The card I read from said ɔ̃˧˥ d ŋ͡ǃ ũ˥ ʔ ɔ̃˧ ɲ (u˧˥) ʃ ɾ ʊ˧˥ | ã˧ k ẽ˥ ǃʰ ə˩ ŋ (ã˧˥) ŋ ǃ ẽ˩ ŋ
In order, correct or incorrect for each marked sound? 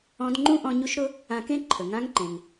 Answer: correct, correct

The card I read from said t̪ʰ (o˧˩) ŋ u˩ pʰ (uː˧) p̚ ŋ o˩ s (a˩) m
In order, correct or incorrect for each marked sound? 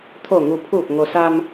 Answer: correct, incorrect, incorrect

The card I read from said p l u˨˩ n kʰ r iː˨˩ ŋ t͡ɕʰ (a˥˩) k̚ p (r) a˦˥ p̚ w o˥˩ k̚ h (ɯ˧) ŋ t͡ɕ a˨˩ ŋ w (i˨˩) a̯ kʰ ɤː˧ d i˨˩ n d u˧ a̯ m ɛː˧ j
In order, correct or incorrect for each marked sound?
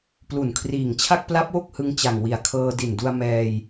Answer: correct, incorrect, correct, correct

